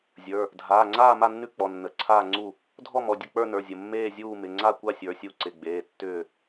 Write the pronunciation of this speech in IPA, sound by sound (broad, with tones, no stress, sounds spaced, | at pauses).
zʲ ə˞˩˧˩ | dʱ aː˩˧˩ ŋ͡ǀ aː˥˨ m a˥˨ nː ʉ˥˨ k͡p ɔ˩˧˩ nː ə˩˧˩ ǀʰ aː˥˨ ŋ͡ǀ u˥˨ | dʱ ɔ˥˨ m ɔ˩˧˩ dʲ ə˥˨ k͡p ə˞˥˨ n ə˞˩˧˩ zʲ ə˩˧˩ mː eː˥˨ zʲ uː˥˨ m ɪ˩˧˩ ŋ͡ǀ a˥˨ kʷ a˥˨ sʲ ə˞˩˧˩ sʲ u˥˨ ǀ ɪ˩˧˩ ɡ͡b eː˩˧˩ tː ʏː˥˨